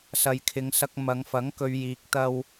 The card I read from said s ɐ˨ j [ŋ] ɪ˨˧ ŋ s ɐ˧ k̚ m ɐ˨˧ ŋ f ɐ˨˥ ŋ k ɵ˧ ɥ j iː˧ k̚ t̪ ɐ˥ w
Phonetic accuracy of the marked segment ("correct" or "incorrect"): incorrect